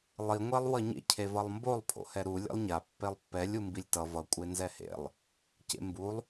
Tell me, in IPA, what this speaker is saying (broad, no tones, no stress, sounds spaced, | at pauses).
lˠ i ŋʷ ɛ lˠ w ʌ ɲ ḛ cʰ e v ʌ lˠ m b o lˠ pʰ o̰ h ɛ ɾ u lʲ ḛ lˠ ɲ a pː e lˠ pː ɛ lʲ u m b i lʲ t ʌ v ʌ kʷʼ e n z ɛ h ḛ lˠ | c ḛ m b u lˠ